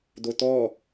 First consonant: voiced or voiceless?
voiced